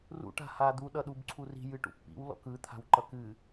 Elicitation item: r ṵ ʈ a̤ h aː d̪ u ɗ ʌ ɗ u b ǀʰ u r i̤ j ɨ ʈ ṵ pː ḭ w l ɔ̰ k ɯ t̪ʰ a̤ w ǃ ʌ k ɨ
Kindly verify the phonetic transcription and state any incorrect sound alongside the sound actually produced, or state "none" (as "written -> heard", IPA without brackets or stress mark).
none